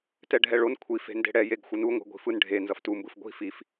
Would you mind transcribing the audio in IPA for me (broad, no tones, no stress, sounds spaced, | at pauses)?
t ɛ ɖʱ ɛ ɭ o n kʷʰ i f e̤ n d e̤ ɽ ɛ j e ɡ xʷ ɯ n u ŋʷ e̤ ɡʷ i̤ f ɯ n ɖʱ e n z ʌ f t u m b ɯ f ɡʷ i̤ f i f